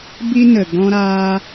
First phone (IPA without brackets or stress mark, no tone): b